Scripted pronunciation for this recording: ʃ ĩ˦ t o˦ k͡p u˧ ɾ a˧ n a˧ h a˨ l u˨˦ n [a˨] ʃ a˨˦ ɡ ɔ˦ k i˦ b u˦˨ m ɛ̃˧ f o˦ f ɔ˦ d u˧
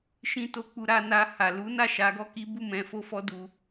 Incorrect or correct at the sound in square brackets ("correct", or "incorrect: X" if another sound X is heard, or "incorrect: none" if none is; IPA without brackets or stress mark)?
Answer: incorrect: a˦˨